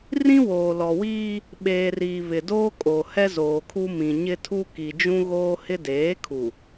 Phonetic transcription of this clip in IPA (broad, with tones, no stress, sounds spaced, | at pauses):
r ĩ˦ w oː˨ l ɔ˨ w iː˦ | ɓ eː˨ r iː˨ β ɪ˨ d oː˦ kʼ o˨ h ɛ˦ z oː˨ kʰ u˦ m ĩ˨ ɲ ɪ˦ tʰ u˦ k i˨ d͡ʒ ũ˦ ɣ oː˦ h ɪ˦ d eː˨˦ kʰ u˨